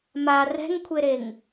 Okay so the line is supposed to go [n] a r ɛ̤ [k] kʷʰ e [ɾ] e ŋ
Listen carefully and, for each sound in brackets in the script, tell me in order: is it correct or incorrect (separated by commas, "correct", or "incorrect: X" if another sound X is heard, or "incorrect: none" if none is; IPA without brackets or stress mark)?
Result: incorrect: m, incorrect: ŋ, correct